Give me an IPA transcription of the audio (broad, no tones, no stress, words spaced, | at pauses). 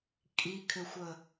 kʼikʰʏxʷə